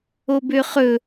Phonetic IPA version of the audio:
o b ø χ ɵ

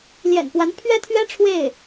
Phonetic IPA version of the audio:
l j ɛ̰˨˩ n p w a˧˥ n pʰ ɥ ɛ˥ t̪ʰ ɥ ɛ˥ ʈ͡ʂʰ w e˥˩ ɪ̯

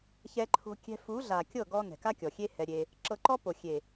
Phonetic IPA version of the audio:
ç ɛ˧ ǃʰ o̤˧ kʲ ɛ̤˧ f u˨˦ ɮ a˨ kʲ ɤ˦˨ ɡ ɔ˧ n ɛ̤˨ k a˦ kʲ ɔ˨ xʲ e˦ h ɛ˧ ɾʲ e˧ | ǁ ɤ˧ ǃ ɔ˦ p o˨ xʲ e˨

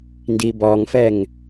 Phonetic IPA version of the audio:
n d i b ɔ ŋ f ɛ ŋ

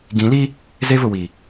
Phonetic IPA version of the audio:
ɡ ĩ˨˦ l i˦ | z e˦ v ʊ˨ w i˨

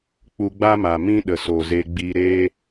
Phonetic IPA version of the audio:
k͡p u˧ ɡ͡b a˦ m a˨ m ĩ˦ ɗ ə˨ s o˨ z e˧ ɡ͡b i˧ ɾ eː˦

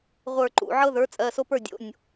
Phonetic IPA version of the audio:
ʁʷ ə˞˧˩ ǃ ṵ˩˧˩ ʕ ɤ˦ ð ə˞˩˥ t͡sʼ ɜ˩˧˩ s o˦ p ə˞˥˩ dʲ o̰˩˧˩ nʲ

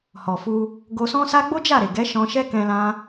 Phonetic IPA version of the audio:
h ɔ˨ f u˧ | ɡ o˧ s ɔ̃˦ s a˦ ɡ͡b o˦ d͡ʒ a˦˨ ɾ e˨ ɡ ɛ˨˦ ʃ ɔ̃˧ ʃ ɛ˦ k ɛ̃˧ l ã˦

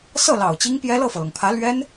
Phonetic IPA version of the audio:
s ɤ˥˩ l ɑ˨˩ ʊ̯ t͡ɕ i˥ ŋ p j ɛ˥ l ɤ˥˩ f ɤ˩ l ɤ˩ ŋ pʰ ä˧˥ l ɥ ɛ˥ n

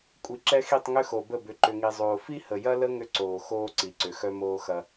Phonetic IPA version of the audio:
kʷʼ i˨ ǁ ɛ˦ x i˦˨ tˤ ŋ ʏ˦ x o˨ b ə˦˨ b ʏ˨ ǃ ʏ˨ ŋ i˨ zˤ oː˨ f i˦ h ə˨ j ɐ˦ l ə˦ ŋ ʏ˦ ǀ oː˨ x oː˦ ǀ i˨ ǀ ʏ˨ x œ˦ m oː˦ x ɐ˦

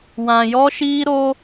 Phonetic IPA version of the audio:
w ã˧ j ɔ˦ ʃ iː˦ ɾ o˦

